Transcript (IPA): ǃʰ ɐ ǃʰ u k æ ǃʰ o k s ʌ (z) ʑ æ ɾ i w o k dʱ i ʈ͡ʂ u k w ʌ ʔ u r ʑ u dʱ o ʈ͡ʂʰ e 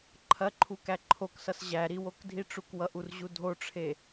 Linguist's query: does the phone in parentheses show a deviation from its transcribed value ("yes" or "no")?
yes